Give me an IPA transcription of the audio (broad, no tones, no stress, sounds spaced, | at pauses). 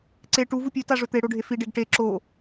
ǀ e ʈ u v u pʲ ʉ t a ʐ ɵ t̪ e ɽ o ɖʱ e f i ɖ e ɡ ʈ e ǁ o